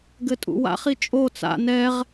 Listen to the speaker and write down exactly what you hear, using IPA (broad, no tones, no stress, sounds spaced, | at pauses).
ɡ ɘ tʼ ṵ w a̰ χ i t͡ʃʼ o t͡s a̰ n ɛ ʁ